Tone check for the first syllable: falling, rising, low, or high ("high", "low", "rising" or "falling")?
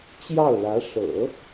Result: falling